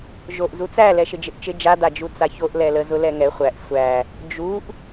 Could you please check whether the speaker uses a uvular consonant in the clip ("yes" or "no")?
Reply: yes